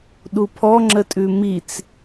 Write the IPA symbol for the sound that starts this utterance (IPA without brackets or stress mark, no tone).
ɗ